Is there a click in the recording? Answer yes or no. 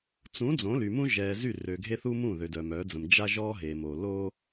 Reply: no